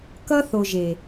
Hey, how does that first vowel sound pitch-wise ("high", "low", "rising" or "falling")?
high